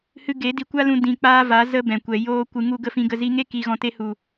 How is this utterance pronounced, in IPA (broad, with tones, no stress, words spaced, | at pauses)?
hɨ˧ɡe˨˦ di˧kʷa˦lũ˧ dĩ˧k͡paː˦va˨˦ zə˦bɛ̃˨kʷɛ˨ joː˧ kʷɨ˨ŋu˧ɡə˧ fĩ˨ɡə˨ zi˧ŋe˦ki˨ ɣɔ̃˨te˧hu˨